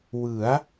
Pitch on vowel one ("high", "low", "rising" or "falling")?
rising